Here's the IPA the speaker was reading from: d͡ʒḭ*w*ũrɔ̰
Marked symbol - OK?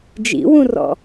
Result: yes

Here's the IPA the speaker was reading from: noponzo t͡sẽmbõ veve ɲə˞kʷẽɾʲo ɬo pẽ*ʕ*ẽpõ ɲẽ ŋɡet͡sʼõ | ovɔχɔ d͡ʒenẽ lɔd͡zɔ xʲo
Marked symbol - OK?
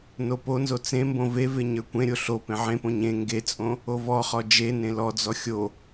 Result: yes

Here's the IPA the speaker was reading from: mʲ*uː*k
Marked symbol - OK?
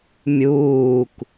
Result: yes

